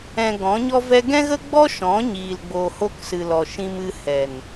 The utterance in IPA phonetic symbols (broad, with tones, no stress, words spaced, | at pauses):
ɛ̃˧ɡɔ̃˨˦ɲɔ˦vɛ˦ ɡɛ̃˦ɣə˦ɡ͡bɔ˦ ʃɔ̃˨˦ɲiː˨lɡ͡bo˨ ho˧ksɨ˨lɔ˨ ʃĩ˧mɨ˧ hɛ˨n